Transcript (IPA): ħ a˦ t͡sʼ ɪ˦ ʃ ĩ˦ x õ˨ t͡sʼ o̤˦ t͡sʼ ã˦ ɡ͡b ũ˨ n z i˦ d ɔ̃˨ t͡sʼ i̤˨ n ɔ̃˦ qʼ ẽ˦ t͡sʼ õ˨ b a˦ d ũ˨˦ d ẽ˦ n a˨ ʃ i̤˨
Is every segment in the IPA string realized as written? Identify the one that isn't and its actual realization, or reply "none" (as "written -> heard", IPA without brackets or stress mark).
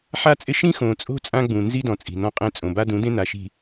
none